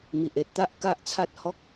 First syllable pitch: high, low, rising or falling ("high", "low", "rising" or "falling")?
low